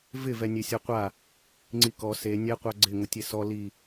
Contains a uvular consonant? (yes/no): yes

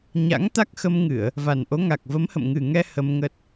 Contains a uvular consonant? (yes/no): no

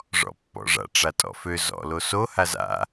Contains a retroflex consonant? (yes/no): yes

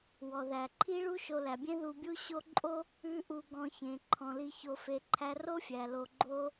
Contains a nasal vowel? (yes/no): yes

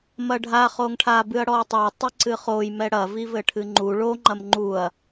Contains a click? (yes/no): yes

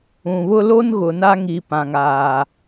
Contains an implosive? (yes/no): no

